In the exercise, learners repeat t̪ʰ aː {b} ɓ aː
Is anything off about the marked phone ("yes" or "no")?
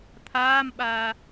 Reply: yes